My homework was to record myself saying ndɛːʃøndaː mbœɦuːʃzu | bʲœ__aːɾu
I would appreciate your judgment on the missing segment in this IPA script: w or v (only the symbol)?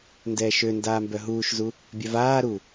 v